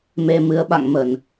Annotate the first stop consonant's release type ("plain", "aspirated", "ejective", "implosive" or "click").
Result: implosive